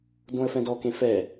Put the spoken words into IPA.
dõə̯fɛ̃dɔ kẽfɛ

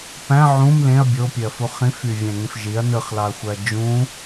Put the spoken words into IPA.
pæ̃ ʕũm lẽɐ̯ bʲopʲøɐ̯fu χĩfy vʲæ̃ŋẽfʒiɐ̯ nɯχlɑɐ̯xʷæɐ̯ d͡ʒũ

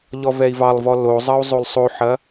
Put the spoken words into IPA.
ʎɔvɛi̯vɑlˠvɔ lozˤɐu̯ zˤolˠsˤoħɐ

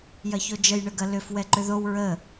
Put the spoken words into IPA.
jɐçod͡ʒəj ɳəɡɐlʏf wɛǃʏðow ɹə

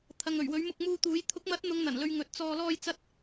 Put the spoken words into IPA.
t̪ʰɐ˨ŋɵ˨˩ɥwɵ˨˥ɥ mʊ˧k̚muː˧t̪uː˨˥j t̪ʰʊ˨˥k̚mɐ˨˥t̚ n̪ʊ˨˧ŋn̪ɐ˨˩nlɵ˨ɥ ŋɵ˨˥t̚t͡sɔː˧ lɔː˧j t͡sɐ˧t̚

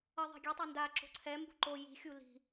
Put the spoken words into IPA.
ʌðˤɛ̤ ɡʲetˤɛ nda ǁo̤ǀʰɛmbṳ ǃo ji̤xʲu li̤

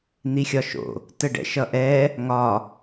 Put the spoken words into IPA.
n̪ixʲɒʃo̰ | təɖɛ̰ʃʌʔɛ | ŋɒ

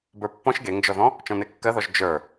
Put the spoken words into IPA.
bə˞pːɔ̃ʃ ɡeŋd͡ʒɔðɔ̃ | t͡ʃɔ̃nekːɜðɔʒ d͡ʒə˞

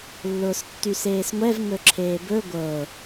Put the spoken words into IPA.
lːʊːstːyseːsŋʷɛv ŋɵǁʰeːbɵ ɡʷɤ

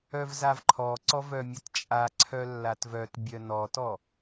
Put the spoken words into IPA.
œvzavǃʰɔǀɔ vœmʲətt͡ʃʼa ǀʰœlːatvœt bʲœnɔtɔ

